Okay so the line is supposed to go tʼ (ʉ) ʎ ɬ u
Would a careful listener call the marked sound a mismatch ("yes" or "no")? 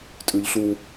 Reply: no